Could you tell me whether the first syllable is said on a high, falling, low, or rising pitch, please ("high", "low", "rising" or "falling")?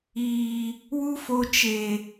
low